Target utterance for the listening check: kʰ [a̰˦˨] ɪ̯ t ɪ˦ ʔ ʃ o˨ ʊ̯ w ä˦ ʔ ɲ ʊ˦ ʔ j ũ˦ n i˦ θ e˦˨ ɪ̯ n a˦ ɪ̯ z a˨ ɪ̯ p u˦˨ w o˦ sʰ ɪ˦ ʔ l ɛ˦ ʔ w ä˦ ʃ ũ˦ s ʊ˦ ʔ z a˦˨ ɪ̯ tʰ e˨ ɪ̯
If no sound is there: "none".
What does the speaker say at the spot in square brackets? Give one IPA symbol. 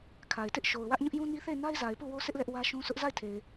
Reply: a˨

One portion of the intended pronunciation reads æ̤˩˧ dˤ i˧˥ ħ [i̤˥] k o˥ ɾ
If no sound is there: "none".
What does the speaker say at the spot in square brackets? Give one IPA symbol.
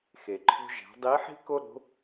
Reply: i̤˥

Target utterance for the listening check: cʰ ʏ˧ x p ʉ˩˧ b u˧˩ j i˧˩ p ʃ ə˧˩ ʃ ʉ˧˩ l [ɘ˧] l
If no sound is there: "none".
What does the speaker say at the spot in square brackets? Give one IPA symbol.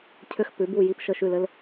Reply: ɘ˧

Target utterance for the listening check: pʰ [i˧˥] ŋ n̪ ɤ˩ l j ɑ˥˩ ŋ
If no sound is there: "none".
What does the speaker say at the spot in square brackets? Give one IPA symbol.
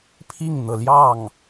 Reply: i˥˩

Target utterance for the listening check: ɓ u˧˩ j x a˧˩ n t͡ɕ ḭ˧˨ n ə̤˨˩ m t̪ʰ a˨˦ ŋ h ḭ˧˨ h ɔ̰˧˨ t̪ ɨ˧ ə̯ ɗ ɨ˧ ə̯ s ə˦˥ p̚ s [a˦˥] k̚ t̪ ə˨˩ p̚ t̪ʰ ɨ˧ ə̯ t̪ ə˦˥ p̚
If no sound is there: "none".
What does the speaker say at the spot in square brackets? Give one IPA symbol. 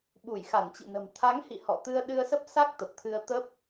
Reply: a˦˥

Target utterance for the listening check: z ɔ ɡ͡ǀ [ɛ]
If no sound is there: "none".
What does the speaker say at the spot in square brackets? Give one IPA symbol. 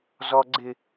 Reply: ɪ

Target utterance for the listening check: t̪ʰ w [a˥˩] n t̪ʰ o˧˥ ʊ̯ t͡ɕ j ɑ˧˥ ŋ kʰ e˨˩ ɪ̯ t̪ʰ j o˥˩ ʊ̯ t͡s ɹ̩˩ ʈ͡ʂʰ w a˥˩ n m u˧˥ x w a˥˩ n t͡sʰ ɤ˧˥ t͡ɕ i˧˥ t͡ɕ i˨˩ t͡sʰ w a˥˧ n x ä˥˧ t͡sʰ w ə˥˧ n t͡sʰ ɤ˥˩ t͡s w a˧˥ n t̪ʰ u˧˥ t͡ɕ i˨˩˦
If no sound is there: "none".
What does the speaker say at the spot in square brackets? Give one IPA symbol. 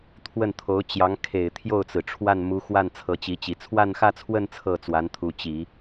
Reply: ə˥˩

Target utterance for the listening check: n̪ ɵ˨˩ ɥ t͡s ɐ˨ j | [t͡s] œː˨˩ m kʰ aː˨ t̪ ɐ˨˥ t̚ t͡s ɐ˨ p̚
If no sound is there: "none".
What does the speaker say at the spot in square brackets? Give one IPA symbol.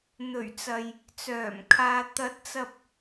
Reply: t͡s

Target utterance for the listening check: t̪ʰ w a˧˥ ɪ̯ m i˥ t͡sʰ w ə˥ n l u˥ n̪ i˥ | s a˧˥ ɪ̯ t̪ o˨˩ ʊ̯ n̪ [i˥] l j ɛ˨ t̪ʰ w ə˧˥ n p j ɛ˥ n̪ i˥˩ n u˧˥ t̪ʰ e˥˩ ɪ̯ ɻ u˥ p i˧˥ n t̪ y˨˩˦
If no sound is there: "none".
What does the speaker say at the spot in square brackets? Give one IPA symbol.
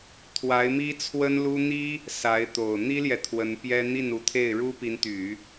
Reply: i˥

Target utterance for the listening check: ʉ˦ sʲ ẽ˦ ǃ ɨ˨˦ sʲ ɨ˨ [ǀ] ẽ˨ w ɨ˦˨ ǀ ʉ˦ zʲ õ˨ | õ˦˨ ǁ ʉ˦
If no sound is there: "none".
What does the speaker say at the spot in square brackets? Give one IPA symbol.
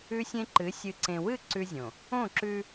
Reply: ǀ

